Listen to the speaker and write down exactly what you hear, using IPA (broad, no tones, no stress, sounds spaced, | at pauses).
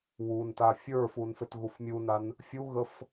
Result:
w u n t a fʲ ə˞ f u n f e t ɣ u f mʲ u n a n | fʲ u ɣ ə f